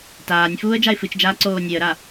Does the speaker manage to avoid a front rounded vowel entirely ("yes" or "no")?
yes